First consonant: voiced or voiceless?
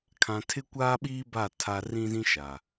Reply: voiceless